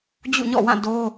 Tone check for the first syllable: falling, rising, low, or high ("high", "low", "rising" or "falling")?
falling